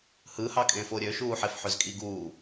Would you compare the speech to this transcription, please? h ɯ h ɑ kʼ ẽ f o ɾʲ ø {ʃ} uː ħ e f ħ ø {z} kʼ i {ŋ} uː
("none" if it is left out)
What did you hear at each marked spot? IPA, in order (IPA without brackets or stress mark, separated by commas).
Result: ʃ, z, ɡ